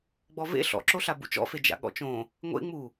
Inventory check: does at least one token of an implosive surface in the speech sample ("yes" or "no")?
yes